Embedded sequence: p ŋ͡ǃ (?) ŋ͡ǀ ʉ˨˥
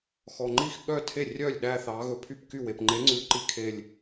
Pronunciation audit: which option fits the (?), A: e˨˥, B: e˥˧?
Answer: A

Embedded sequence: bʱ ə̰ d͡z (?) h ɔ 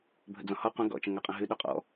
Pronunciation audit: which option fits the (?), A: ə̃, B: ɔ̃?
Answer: B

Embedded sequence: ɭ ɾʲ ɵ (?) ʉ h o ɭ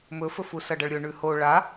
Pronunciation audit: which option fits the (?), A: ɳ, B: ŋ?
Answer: A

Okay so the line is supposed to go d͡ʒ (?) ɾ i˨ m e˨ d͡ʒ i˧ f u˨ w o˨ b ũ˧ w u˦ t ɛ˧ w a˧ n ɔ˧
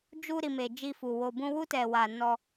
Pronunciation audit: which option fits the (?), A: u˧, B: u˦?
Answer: A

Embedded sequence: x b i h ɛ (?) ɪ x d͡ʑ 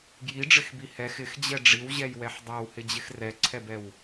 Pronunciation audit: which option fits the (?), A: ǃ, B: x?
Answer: B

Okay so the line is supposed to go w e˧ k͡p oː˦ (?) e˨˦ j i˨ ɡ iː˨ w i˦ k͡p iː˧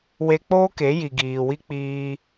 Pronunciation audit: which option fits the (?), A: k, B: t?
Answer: A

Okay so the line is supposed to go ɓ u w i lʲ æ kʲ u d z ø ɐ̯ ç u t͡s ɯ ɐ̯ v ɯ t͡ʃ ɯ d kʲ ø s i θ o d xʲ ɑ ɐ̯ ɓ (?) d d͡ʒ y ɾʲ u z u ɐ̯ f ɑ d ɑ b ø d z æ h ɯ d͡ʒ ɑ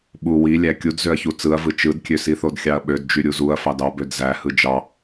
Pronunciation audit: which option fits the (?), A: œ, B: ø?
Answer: B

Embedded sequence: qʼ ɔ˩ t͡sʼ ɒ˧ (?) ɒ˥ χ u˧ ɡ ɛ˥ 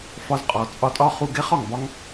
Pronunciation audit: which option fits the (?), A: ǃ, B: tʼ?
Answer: B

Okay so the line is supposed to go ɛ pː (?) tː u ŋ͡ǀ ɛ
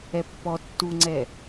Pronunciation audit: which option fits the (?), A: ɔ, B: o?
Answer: A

